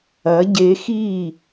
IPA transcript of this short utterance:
ɐ˨˦ ɟ e˧ x i˦˨

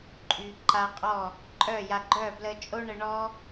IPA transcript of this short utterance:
ǃʼ y˨ ǃ a˧ qʼ ɔ˦˨ | ǃʼ œ˦˨ j a˧ ɡ͡ǃ œ˦˨ b l ə˧ t͡ʃʼ o˦ ɳ ə˧ ɳ ɔ˦

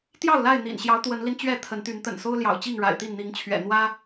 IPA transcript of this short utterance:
t̪ j ɑ˥˨ ʊ̯ l a˥˨ ɪ̯ n̪ ḭ˨˩ n ɕ j ɑ˨˦ ʊ̯ t̪ w ə˨˦ n l i˧ n t͡ɕ ɥ ɛ˥˨ t̪ʰ ə˨˦ n t̪ y˨˦ n t̪ ə̰˨˩ n s o˦ ʊ̯ l j ɑ̰˨˩ ʊ̯ t͡ɕ i˥˨ ŋ ɻ a̰˨˩ ɪ̯ t̪ i˥˨ n n̪ i˨˦ ŋ t͡ɕʰ ɥ ɛ̰˨˩ n̪ w ä˦

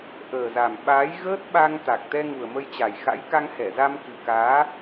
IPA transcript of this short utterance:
ʔ əː˨˩ z a˨˩ m ɓ aː˨˦ j ɣ əː˦˥ t̚ ɓ a˧ ŋ t̪ a˨˩ k̚ t̪ ɛ˧ ŋ u˨˩ ə̯ m ə˧ j t͡ɕ a˨˩ j x a̰˧˥ j k a˧ ŋ h ɛ˧˩ z a˧ m k ɨ˨˩ k aː˨˦

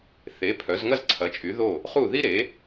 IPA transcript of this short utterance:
θ e˩˥ pʰ œ˩˥ z ŋ ɐ˥ z ǀʰ ɐ˩˥ t͡ʃʼ y˩˥ ð o˥˩ | χ u˥˩ ð i˥ ɾ e˩˥

